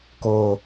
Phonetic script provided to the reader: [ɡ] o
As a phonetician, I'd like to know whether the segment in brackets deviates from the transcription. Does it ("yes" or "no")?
yes